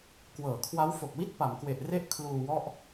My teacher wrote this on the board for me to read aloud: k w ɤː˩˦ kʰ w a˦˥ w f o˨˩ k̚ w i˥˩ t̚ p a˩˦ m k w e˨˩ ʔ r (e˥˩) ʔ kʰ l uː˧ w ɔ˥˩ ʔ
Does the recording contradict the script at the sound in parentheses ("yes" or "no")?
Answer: no